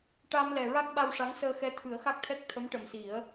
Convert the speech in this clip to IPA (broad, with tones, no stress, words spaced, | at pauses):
ʈa˧mlɛ˨˩ɹa˦˥k̚ ɓa˧wʂa˧˥ŋsəː˧ xɛ˧˥t̪ʰɨ˨˩˦ə̯xa˦˥k̚t̪ʰɛ˦˥k̚ t̪ʰə˧˥mʈə˨˩msi˨˩˦ə̯